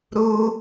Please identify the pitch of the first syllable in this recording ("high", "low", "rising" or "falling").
high